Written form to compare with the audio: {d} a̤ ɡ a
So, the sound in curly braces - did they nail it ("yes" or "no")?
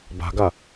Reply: no